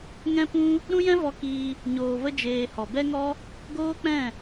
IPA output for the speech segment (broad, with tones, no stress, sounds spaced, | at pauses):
ŋ ɛ̃˦ p ũ˦ | ɾ ũ˦ j ɛ̃˦ v ɔ˧ k iː˧ | ɲ oː˧ v ə˦ d͡ʒ eː˧ h ɔ˨ b ɛ˦ ŋ ɔ˦ | ɡ oː˦ k͡p ɛ̃˦˨